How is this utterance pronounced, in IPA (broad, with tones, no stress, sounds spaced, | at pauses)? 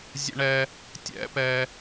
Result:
zʲ ə̰˧ ɳ ɛ˧ | tʲ ɛ̰˧ p ɛ˧